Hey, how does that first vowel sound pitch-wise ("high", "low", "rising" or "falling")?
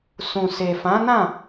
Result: low